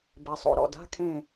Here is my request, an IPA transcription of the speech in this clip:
b ɛ˩˧ sˤ o̰˩˧ ɾ ɔ̰˨˩ d a̤˧˥˧ kʰ ẽ˦˨

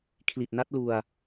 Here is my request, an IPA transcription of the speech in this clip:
kʰ l i˨˩ t̚ n a˦˥ t̚ l u˧ a̯

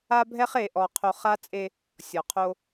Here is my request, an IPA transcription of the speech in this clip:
a˦ bʱ ɛ˦ χ e˨ ʔ ɔ˨ qʰ o˨ χ a˦ t͡sʼ e˦ | sʲ ɔ˨ qʰ o˦

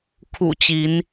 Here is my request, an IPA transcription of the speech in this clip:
kʰ ṵ˨˩ t͡ɕ i˨˦ n

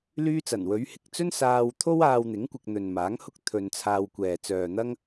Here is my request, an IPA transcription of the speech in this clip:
l yː˥ t͡s ɐ˨˩ n w ɵ˨˥ ɥ h ɪ˨ k̚ t͡s ɵ˥ n s aː˧ w t̪ʰ o˥ w aː˧ w n̪ ɪ˨˥ ŋ kʷ ɪ˧ k̚ n̪ ɵ˨ n m aː˨˥ ŋ h ʊ˥ k̚ t̪ʰ ɵ˧ n t͡sʰ aː˧ w kʷ ɛː˨ t͡s œː˨ n̪ ɐ˥ ŋ

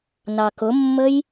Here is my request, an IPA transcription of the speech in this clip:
n ɑ k ʊ mː ə j

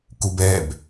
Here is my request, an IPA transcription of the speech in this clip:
k u b ɛ b

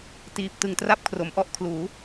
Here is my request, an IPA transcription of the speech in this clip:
t iː˨˩ p̚ t ɯ˨˩ ŋ t r a˥˩ p̚ kʰ r o˩˦ m ʔ ɔ˥˩ ʔ kʰ l uː˩˦

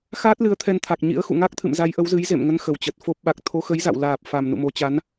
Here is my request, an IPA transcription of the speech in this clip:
x aː˦˥ t̚ l ɨ˨˦ ə̯ t̪ʰ ɛ˧ n t̪ʰ a˨˩ k̚ ɲ ḭ˧˥ ə̯ x ṵ˧˨ ŋ a˦˥ k̚ t̪ʰ ɨ̰˧˨ m z a˨˦ j ʔ ə˨˦ w z ɨ˨˦ j z ḛ˧˨ m ŋ ə˨˦ n x ə˨˩ w t͡ɕ ə˨˩ t̚ f o˦˥ p̚ ɓ a˨˩ k̚ t̪ʰ o˨˦ x ə˨˦ j z a̰˧˨ w l aː˨˩ p̚ f a˨˩ m n ṵ˧˨ m o˨˦ t͡ɕ a˨˦ n

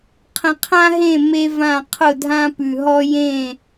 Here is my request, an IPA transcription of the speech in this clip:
qʰ ə̃˨ qʰ ã˦ ɦ ẽ˦˨ m e˦ v ã˦˨ qʰ ʊ˦˨ dʱ ã˦ p ʉ˨ ɦ ɔ˦ j ẽ˦˨

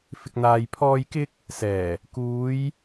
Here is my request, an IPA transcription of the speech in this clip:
f ɪ˨ k̚ n̪ aː˨ j pʰ ɔː˧ j k ɪ˧ k̚ | s ɛː˨˩ | k uː˨˧ j

